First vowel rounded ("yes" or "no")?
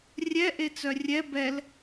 no